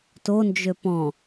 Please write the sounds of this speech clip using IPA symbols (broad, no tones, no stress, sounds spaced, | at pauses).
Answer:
t o n d͡ʒ ø p ɔ̃